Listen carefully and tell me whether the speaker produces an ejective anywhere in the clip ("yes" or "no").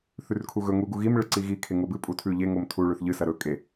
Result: yes